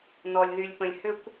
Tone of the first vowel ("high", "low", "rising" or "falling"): low